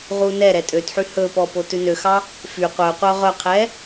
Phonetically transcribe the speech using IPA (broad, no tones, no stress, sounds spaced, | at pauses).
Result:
ʁ u n ɛ ɾ ɛ tʼ ø t ħ y h ɵ p ɔ p o t ʉ n ø x ɑ | f y qʷ œ qʷ œ ʁ œ qʰ ɛ